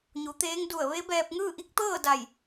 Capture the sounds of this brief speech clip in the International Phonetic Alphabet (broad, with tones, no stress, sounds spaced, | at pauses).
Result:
ɲ u˩˧ t̪ eː˧˥ ŋ d u˧˩ ə̯ ʋ e˧˥ b ɛː˧ p̚ ŋ ɯː˥˨ ʔ i˧˥ k̚ t̪ ɤː˥˨ d a˧˩ j